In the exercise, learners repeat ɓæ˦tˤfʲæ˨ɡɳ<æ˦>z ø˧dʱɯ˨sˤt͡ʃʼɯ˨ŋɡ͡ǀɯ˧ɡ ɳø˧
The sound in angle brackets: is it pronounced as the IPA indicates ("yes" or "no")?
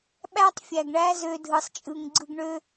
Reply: yes